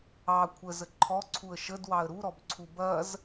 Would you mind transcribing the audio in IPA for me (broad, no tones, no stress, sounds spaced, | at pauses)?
ɑ kʷʰ ə z ə ǃʰ ɔ ǀʰ u ə̯ ʃ ə d w ɑ ə̯ ɾ u ɾ ɔ b ǀʰ u b ɐ z